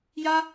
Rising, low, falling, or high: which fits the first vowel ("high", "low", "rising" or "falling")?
high